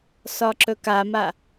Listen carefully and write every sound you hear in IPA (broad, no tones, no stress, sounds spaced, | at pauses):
s ɒ ǁ ɵ k a m a